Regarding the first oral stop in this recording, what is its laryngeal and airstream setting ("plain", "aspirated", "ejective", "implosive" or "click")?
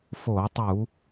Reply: plain